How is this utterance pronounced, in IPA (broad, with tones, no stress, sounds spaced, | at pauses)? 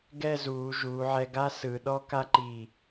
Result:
ɡ ɛ˥˧ z uː˩˧ ʒ uː˩˧ ʕ ɛ˧ ɡ a˥ s ɯ˩˧ ɗ ɔ˥ k a˥ ǃ i˧˩